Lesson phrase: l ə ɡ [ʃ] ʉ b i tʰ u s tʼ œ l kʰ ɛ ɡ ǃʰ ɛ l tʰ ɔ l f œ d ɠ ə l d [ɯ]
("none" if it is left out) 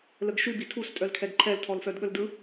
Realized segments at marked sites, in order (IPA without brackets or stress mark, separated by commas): ʃ, ɯ